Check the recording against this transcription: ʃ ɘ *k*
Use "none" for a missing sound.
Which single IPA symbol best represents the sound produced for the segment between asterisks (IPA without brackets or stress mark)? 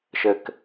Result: k